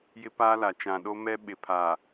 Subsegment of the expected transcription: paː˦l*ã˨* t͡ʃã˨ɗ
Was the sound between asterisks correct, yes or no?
no